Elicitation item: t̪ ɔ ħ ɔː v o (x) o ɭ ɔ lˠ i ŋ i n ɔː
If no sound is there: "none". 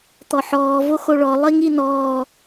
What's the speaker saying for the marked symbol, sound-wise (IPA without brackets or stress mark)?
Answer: x